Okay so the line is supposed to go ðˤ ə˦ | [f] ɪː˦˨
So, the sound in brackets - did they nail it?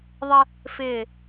yes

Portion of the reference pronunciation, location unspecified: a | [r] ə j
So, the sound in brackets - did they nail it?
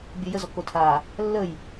no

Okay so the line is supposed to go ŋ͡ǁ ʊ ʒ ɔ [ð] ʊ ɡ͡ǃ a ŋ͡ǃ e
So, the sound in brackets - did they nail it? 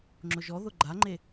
yes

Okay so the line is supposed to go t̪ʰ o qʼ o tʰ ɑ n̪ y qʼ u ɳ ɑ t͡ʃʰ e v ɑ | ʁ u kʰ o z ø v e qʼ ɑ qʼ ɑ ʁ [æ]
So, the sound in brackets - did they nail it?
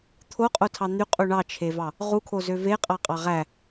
yes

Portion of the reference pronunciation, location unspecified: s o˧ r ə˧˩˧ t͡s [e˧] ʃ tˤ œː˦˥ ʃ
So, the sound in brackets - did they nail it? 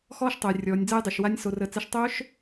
no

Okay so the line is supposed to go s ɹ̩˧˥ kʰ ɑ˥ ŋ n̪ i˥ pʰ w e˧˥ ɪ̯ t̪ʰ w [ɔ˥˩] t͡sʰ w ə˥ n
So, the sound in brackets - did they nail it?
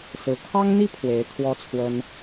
no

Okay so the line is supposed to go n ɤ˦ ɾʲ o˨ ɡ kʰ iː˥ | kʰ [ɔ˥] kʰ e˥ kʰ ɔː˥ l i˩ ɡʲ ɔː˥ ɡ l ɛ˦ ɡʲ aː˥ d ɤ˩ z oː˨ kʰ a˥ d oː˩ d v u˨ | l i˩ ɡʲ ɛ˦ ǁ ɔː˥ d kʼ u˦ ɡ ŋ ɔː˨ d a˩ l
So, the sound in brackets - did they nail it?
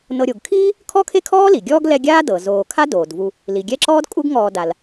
yes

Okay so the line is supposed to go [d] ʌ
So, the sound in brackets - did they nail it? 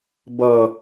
no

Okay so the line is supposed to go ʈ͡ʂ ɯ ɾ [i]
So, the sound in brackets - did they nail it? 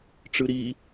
yes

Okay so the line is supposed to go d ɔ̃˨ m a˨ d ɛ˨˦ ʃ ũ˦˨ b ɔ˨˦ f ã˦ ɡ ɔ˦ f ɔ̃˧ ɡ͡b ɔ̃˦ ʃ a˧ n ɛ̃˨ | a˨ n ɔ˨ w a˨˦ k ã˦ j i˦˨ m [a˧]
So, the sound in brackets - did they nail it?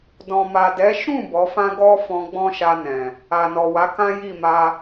yes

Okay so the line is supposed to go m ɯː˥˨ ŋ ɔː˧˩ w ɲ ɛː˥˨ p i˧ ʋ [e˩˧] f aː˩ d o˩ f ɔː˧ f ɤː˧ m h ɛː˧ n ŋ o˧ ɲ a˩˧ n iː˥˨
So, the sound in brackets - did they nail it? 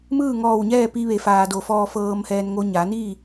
yes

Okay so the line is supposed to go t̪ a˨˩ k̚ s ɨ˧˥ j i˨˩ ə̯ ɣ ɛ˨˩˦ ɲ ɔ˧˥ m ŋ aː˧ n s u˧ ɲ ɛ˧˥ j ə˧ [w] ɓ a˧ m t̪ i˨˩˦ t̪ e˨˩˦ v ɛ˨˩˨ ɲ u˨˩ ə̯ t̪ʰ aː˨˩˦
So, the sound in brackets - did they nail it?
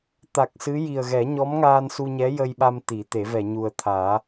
no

